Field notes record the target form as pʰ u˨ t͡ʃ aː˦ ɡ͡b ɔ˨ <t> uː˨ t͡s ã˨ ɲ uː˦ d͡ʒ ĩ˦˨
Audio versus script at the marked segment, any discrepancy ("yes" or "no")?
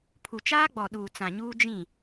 yes